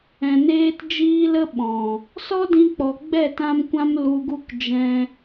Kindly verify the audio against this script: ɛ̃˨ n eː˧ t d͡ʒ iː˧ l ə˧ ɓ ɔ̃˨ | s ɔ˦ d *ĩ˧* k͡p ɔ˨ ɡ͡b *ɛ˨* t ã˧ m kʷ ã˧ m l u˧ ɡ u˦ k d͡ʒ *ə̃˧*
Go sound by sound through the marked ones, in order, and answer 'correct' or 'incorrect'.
correct, incorrect: ɛ˦˨, incorrect: ɛ̃˧

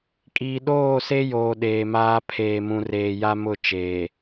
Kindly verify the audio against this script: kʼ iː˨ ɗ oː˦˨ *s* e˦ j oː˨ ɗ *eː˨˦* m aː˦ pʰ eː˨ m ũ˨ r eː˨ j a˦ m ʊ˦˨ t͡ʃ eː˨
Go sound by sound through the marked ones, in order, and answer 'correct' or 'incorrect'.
correct, incorrect: eː˨

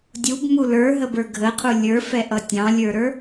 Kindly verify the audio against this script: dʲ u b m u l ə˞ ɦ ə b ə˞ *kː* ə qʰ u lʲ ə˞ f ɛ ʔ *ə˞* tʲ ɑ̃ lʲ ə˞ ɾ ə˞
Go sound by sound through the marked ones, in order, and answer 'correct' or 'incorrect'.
incorrect: ɡʱ, incorrect: ʌ

